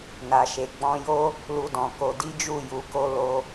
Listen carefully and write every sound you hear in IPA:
n a˨ ʃ e˨ ɡ͡b ɔ̃˧ j o˦ | l u˧ d ɔ̃˨ k o˧ d i˦ d͡ʒ u˦˨ j u˨˦ k o˦ l o˦

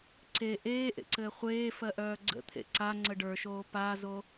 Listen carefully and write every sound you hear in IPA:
ǀ e ʔ eː ʔ ḛ ǀ ɘː χʷ eː f ɜ ʔ œː ɡ͡ǀ ə̰ t̪ʰ ḛ ǀ a ŋ͡ǀ ə ɖ ə˞ ʃ oː p a z o

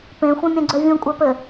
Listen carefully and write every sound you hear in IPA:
p ẽ xʷ œ̃ mʲ œ̃ ɡ͡ǀ œ vʲ ũ kʷʼ a p ɘ

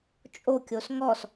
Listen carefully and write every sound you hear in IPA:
t͡ʃʼ o kʲ o s ŋ ɔ s

